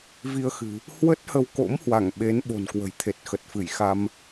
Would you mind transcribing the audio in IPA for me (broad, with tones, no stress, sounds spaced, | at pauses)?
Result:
v i˧ ə̯ x ɨ̤˨˩ | h w ə˦˥ t̚ h ə˧ w k o̰˧˥ m h w a˧˩ ŋ ɓ e˨˦ n ɓ o̤˨˩ n k w ə̤˨˩ j t̪ʰ e˨˩ t̚ x ə˨˩ t̚ f ɨ˧˩ j x a˧ m